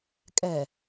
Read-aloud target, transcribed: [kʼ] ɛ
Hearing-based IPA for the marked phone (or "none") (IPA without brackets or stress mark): kʼ